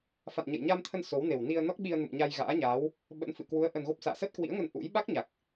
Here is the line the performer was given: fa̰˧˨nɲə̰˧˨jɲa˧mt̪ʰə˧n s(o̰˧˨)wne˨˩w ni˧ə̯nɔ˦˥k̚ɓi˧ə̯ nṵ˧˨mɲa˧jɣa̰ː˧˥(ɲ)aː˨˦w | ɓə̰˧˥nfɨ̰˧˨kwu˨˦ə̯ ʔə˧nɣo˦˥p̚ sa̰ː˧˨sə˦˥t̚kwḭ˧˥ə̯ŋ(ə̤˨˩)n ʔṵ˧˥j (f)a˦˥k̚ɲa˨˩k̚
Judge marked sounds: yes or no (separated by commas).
no, yes, no, no